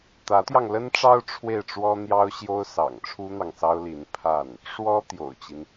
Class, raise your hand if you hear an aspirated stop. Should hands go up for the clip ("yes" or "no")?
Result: yes